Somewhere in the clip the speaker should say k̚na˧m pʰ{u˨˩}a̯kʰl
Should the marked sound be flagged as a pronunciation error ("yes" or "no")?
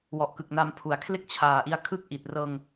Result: yes